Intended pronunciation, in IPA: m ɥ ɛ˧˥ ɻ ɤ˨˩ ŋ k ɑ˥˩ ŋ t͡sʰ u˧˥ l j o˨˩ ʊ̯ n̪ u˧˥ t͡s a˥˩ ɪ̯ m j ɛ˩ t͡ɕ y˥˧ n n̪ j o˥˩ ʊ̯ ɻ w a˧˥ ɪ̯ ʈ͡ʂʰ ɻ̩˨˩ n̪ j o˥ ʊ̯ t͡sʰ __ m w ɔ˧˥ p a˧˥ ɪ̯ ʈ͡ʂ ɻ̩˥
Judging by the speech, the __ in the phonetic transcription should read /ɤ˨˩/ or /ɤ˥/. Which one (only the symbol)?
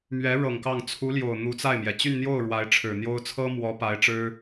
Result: ɤ˥